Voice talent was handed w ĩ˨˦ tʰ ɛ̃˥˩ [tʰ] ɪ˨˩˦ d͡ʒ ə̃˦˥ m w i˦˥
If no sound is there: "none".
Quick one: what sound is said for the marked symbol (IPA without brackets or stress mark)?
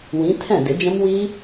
d